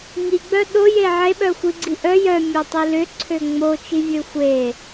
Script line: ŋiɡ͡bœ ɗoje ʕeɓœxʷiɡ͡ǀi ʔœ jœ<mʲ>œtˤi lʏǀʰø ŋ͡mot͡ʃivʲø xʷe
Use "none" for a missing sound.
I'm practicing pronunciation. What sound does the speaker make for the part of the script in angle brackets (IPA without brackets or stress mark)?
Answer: mʲ